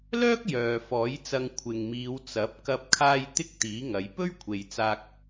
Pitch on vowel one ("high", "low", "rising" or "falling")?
high